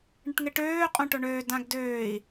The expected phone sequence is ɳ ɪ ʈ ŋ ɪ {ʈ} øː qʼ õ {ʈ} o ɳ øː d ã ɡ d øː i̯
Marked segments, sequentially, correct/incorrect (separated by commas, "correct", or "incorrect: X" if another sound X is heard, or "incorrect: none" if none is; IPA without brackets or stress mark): correct, correct